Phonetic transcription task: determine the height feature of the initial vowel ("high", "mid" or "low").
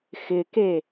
high